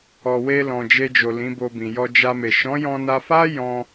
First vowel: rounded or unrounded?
rounded